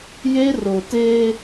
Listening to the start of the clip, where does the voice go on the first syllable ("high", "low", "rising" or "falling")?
high